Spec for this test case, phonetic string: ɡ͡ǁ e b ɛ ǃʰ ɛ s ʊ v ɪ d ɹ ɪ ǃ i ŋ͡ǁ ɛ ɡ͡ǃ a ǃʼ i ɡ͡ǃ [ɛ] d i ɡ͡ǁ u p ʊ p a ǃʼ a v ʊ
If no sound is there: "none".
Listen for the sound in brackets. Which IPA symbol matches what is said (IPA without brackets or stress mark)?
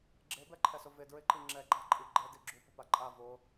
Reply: ɛ